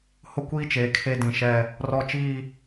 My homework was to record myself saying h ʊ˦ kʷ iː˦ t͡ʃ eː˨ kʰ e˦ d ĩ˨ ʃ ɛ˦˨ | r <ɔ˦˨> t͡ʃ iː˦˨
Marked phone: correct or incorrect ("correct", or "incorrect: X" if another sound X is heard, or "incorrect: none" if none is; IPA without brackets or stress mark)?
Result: correct